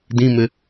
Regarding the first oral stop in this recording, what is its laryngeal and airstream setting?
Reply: plain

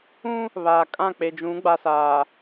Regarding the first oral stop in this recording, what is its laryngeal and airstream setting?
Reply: ejective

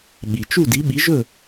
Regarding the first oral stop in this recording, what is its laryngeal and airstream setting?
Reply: implosive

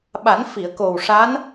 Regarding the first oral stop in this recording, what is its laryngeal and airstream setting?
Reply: implosive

